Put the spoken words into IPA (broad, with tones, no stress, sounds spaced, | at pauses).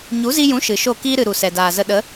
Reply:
ɲ u˨˦ z i˧ j ũ˨˦ ʃ ɨ˨ ʃ o˦˨ k iː˧ ɾ ɨ˨ ɾ u˨ s ɛ˨ d aː˨ z ə˧ ɗ ə˨˦